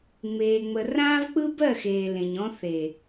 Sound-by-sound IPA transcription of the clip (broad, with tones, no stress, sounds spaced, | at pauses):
ŋ͡m eː˨ ŋ͡m ə˨ r ãː˦ v k͡p ɯ˦ b ɜ˦˨ x eː˨ l ẽ˨ ɲ ɔ̃˦ θ e˨